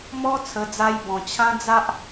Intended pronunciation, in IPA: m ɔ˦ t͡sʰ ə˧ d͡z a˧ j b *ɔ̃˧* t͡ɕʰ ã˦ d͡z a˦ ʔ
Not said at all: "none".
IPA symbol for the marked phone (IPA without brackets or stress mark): ɔ̃˨˩